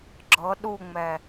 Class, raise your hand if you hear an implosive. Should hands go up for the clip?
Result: yes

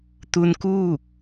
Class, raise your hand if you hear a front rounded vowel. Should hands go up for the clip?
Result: no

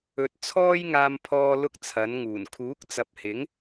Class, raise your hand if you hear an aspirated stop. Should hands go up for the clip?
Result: yes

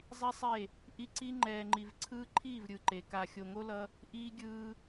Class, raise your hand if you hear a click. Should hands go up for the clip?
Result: yes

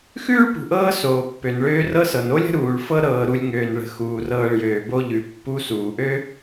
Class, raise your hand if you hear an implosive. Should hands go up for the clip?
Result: no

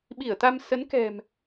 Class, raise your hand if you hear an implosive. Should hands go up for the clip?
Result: yes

